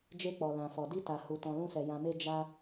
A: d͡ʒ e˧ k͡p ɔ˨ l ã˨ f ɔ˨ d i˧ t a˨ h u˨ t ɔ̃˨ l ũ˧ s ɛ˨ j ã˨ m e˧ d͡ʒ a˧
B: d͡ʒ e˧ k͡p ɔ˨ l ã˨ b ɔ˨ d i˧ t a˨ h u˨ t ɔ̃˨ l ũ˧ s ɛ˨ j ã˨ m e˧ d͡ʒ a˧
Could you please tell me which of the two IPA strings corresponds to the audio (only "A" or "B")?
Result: A